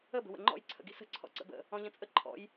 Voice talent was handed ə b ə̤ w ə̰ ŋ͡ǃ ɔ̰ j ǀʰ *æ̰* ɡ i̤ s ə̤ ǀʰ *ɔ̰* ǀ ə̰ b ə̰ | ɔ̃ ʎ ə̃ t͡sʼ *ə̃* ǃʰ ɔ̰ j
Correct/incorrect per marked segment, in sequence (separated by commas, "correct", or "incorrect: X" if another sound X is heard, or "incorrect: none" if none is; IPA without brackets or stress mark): incorrect: ə̰, correct, incorrect: ə